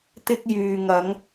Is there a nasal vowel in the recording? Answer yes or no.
no